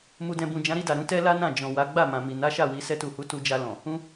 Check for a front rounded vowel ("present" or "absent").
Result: absent